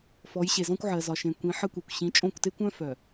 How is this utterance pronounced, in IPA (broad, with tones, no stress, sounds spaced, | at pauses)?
f ɔ˨˦ j ɕ e˨ z ɔ̃˦ kʷ ʕ ɜ˨ z ɒ˨ ʃ ẽ˨ kʷ ĩ˨˦ ħ ə˦ kʷ e˨ kʷ ɕ ĩ˨˦ t͡ʃʼ õ˦˨ kʷ t e˦ kʷ œ̃˦ f œ˨